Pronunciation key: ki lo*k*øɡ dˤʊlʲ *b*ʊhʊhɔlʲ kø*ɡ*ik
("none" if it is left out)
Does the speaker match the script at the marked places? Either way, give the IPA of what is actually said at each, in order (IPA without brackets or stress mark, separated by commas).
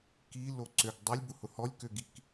ǀ, b, ɡ